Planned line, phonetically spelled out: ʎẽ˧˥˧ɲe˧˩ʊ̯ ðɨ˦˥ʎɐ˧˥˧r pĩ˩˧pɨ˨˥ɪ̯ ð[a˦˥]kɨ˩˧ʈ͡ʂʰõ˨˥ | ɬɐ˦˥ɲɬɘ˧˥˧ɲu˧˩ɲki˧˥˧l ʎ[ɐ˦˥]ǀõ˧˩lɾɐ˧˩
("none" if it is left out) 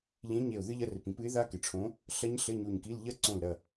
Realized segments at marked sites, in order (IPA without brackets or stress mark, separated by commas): a˦˥, ɐ˦˥